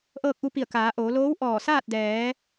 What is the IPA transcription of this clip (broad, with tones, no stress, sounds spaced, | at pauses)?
ʔ ɤː˧ k̚ ʔ u˧ p i˧˩ ə̯ k aː˩˧ ʔ oː˩˧ l oː˧˥ w ʔ ɔː˧˩ s aː˥˨ t̚ d ɛː˩˧